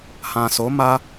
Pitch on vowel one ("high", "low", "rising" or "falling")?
low